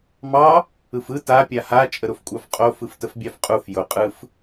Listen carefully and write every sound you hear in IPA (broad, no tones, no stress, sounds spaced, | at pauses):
m ɑ | ɯ f ɯ t a pʲ a h a t͡ʃʼ ə ɾ ʊ f kʷʼ ɑ f qʼ o f ɯ f t ə f bʲ ɑ f qʼ u f j ʊ qʼ ɯ f